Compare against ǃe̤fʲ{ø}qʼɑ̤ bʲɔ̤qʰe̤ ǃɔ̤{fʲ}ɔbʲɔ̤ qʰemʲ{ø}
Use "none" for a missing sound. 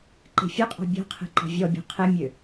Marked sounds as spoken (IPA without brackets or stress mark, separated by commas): œ, vʲ, ø